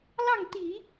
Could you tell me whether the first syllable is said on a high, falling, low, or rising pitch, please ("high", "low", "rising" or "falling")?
falling